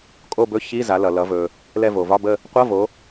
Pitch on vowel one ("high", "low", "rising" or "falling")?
falling